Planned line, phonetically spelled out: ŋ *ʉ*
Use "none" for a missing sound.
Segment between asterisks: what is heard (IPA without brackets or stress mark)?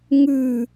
ʉ